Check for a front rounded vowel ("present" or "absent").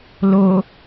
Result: absent